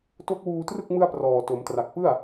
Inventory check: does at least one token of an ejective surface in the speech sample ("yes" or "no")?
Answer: no